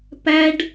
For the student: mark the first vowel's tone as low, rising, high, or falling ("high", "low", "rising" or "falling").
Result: high